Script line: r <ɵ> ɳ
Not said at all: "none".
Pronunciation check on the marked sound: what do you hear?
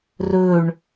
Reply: ɵ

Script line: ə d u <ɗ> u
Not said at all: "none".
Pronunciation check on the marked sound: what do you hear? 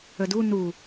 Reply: n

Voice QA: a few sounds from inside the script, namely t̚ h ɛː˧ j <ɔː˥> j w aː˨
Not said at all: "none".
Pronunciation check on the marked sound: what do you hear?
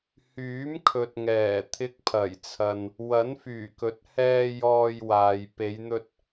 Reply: ɔː˧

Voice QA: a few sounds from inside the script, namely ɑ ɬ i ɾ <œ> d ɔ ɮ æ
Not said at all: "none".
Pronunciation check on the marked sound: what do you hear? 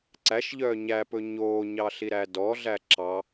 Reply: æ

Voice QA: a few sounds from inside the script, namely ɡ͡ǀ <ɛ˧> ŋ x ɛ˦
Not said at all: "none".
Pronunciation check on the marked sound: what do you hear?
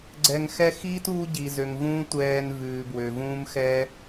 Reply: ɛ˧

